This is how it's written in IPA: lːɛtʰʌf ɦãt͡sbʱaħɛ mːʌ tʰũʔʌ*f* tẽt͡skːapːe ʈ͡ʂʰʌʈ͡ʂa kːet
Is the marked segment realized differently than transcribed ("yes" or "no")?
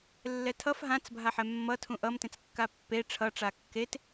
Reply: yes